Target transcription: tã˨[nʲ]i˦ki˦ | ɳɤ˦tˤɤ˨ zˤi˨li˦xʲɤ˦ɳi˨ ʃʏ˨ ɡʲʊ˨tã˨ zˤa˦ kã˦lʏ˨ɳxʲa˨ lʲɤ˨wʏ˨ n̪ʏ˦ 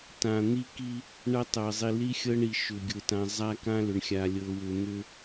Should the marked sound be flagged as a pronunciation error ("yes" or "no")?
yes